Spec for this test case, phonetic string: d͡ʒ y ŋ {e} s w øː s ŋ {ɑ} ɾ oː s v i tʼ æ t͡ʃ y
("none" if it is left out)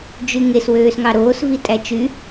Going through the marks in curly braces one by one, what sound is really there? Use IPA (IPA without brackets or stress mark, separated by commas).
e, ɑ